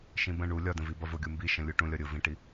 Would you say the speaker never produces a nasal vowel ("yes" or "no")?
no